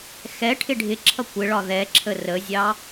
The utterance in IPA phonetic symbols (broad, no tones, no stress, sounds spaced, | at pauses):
x ɛ ʈʰ ɪ ɖʱ ɪ ǁʰ ʌ kʷ ɪ ɭ ɒ ð ɛ ǁʰ ə r ə zʲ ɑ